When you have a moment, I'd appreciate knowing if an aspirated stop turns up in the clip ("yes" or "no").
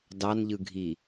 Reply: no